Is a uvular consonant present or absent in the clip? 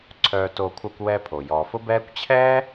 absent